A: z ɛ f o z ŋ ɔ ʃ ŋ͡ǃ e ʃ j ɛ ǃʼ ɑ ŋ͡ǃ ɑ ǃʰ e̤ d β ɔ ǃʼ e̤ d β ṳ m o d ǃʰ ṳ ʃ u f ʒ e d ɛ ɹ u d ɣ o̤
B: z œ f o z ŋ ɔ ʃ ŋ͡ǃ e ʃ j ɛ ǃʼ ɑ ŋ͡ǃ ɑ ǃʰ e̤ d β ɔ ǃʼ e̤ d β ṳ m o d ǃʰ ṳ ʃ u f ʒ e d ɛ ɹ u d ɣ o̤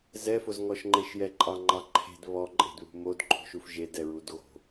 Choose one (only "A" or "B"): A